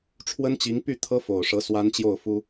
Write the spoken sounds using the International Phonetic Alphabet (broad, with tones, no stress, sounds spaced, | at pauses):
ʈ͡ʂʰ w ə˥ n t͡ɕ i˧˥ ŋ p y˥˩ t̪ʰ ɤ˥ f o˨˩ ʊ̯ ʂ ɤ˧˥ s w a˥ n t͡ɕ j o˥˩ ʊ̯ f u˥